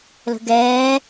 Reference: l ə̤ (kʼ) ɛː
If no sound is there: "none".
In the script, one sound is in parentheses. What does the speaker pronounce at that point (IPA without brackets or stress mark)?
ɡ